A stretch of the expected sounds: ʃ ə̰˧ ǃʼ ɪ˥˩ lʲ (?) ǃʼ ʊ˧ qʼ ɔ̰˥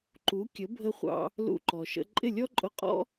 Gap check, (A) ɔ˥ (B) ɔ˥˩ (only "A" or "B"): A